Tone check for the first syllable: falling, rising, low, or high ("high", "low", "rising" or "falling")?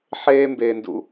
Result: high